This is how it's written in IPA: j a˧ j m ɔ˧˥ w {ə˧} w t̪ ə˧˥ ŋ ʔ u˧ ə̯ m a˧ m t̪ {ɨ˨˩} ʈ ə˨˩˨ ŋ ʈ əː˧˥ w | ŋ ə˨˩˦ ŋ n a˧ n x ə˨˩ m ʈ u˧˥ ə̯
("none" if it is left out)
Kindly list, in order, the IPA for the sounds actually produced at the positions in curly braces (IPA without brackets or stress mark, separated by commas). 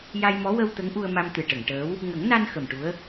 ə˧, ɨ˨˩